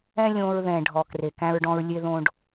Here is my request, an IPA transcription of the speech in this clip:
ɛ̃˦ lʲ õː˧ ɹ ð ɛ̃˨ ɖʱ ɔ˨ k r e˨ k æ̃˧ ɹ ɖ ɔ̃˧ ɹ lʲ e˧ ð õ˧ ɖ

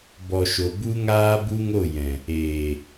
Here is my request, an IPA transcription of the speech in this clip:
b ɔ˨ ʃ o˨ b u˦ ŋ aː˦ b u˦ ŋ o˦˨ j ɛ̃˨ | eː˨

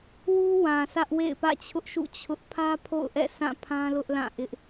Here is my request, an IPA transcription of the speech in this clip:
w u˦ w ã˨ sʰ ä˦ ʔ w ḛ˦˨ ɪ̯ p ä̰˦˨ t͡ɕʰ ʊ˦ ʔ ʃ ṵ˦˨ t͡ɕʰ ʊ˦ ʔ pʰ ä˦ pʰ o̰˦˨ ʊ̯ ʔ ɛ̰˦˨ sʰ ã˦˨ pʰ ã˦ l ʊ˦ ʔ l ã˦˨ ʔ ɪ˦ ʔ

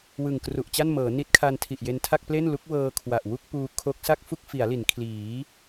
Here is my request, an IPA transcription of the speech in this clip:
w ɯ˨˩ ŋ k r u˨˩ ʔ t͡ɕ a˥˩ n m ɤː˩˦ n i˦˥ t̚ kʰ a˧ n tʰ i˨˩ ʔ j e˧ n tʰ a˥˩ k̚ p l e˥˩ n l u˦˥ k̚ w ɤː˧ kʰ w a˨˩ ʔ w u˥˩ k̚ p uː˧ kʰ o˦˥ k̚ s a˥˩ k̚ f u˥˩ k̚ f i˩˦ a̯ l i˩˦ n kʰ l iː˩˦

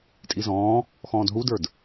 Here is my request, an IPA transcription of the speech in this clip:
tʼ i z ɔ̃ː | x ɔ̃ː d ɦ u d ə˞ d

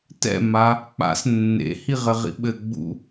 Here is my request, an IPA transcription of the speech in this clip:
t ɛ̰ m a | k͡p a̰ s nː ḛ h i ʁ ɘ ʁ ḭ ɓ ɘ ɡ͡b ṵ

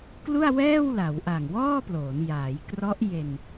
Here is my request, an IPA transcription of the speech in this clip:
k l u˥˩ a̯ w ɛː˥˩ w l a˩˦ w ʔ a˨˩ ŋ w ɔː˥˩ p l oː˩˦ n j aː˩˦ j k r ɔ˦˥ ʔ j e˧ n

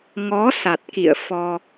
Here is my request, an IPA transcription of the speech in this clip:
ŋ ɔ˨˦ s a˨˩ t̚ k ḭ˧˨ ə̯ f ɔ˧

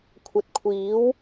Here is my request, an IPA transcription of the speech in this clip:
kʷʰ ɐ˨ t̚ kʷʰ iː˨˥ w

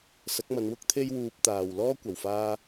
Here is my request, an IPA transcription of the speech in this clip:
s ɐ˨˥ k̚ m ɐ˨˧ n w ʊ˥ k̚ t̪ʰ e˥ j w uː˧ p̚ t̪ aː˨ w l ɔː˥ kʷ ɐ˨˩ w f aː˥

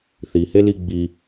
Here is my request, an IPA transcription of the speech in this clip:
θ i h e l i ɡ͡b i

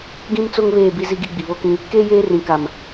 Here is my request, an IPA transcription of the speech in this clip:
ɡ ĩ˦ m t͡s o˦ ŋ β eː˦˨ b i˦ z i˦ ɡ i˦ ɡ͡b i˨ β o˦ k ĩ˦ | k eː˦ j eː˦ r ĩ˨ k a˨ m

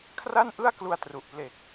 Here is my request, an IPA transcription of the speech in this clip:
kʰ r a˥˩ n ʔ ɯ˥˩ a̯ k l u˧ a̯ t r u˨˩ ʔ p l e˨˩ k̚

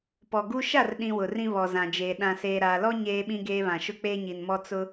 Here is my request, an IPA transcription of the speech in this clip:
p ɔ˨ ɡ u˦ ʃ a˦˨ r ɗ ĩ˨ w ʊ˨ r ĩ˦ β ɔ˨ z ã˨ d͡ʒ eː˨ ɗ ã˨ s eː˨ ɾ aː˨ l ɔ˦ ɲ eː˦ ɓ ĩ˦ ɡ eː˦ β ã˨ ʃ ʊ˦ k͡p eː˦ ɲ i˨ n m ɔ˦ t͡s ʊ˦

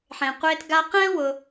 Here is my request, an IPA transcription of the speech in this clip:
ħ ẽ˨ qʷ e˧ t ɡ a˧ q ɛ̃˦ w ʊ˧

